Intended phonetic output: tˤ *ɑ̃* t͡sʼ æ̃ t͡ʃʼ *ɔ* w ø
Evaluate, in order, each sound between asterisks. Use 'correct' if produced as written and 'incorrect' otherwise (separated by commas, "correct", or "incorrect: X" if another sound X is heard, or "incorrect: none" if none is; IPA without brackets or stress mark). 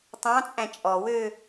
correct, correct